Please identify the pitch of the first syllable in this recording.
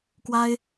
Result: high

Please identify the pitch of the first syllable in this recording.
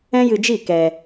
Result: high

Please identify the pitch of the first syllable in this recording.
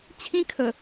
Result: high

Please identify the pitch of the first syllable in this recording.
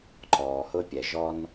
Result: low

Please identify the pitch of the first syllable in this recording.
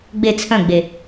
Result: falling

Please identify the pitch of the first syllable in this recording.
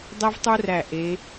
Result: high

